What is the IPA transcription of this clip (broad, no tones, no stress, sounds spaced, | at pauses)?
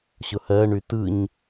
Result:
ɕ ʊ h ɜ ɳ y t ɯ ɲ